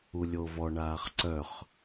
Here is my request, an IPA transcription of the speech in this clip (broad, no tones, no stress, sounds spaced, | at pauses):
u lʲ o v ɔ ɳ aː χ ǀ œ χ